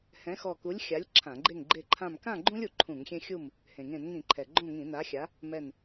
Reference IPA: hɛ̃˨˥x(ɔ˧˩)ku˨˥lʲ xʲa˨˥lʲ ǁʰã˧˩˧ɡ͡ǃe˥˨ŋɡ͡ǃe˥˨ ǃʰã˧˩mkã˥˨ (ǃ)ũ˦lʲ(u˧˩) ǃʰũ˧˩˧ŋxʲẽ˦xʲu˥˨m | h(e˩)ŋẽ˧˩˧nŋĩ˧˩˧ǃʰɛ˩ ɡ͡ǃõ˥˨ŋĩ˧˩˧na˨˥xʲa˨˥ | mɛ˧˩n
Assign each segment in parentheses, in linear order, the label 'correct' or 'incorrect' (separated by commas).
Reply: correct, incorrect, incorrect, incorrect